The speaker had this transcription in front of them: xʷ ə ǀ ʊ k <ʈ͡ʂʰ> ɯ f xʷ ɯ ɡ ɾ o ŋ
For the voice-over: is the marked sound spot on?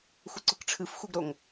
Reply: yes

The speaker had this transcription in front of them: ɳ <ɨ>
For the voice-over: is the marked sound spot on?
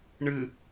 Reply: yes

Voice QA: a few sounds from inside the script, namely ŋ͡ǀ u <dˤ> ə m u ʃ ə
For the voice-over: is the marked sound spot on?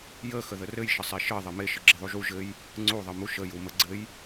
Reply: no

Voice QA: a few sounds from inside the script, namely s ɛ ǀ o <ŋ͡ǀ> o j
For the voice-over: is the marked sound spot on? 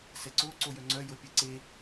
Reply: no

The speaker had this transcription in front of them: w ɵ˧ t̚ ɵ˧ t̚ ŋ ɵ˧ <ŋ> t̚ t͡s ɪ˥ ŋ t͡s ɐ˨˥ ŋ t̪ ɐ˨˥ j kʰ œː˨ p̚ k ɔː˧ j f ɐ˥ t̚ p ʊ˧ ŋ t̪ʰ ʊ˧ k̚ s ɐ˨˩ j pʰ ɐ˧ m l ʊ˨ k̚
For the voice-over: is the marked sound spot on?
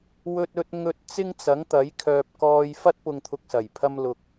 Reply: no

